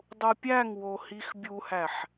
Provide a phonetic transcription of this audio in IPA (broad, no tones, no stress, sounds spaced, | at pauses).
dˤ u pʲ æ ŋ w o h i x bʲ u h æ ħ